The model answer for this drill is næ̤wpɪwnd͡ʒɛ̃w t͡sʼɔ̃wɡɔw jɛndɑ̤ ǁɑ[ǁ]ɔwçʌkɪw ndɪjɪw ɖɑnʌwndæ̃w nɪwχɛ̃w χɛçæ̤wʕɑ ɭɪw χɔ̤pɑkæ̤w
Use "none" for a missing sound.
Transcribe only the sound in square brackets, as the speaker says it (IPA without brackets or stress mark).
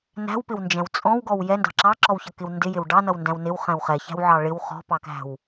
ǁ